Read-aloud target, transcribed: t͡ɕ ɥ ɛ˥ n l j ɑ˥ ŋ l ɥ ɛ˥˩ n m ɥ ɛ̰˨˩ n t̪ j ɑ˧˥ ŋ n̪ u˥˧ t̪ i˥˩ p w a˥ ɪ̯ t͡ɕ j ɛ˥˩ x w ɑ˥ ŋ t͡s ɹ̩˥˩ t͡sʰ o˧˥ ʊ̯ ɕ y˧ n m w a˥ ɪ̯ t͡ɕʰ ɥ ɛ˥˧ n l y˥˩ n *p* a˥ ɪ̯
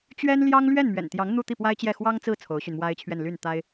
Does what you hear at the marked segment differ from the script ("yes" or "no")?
yes